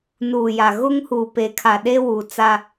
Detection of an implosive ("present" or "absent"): present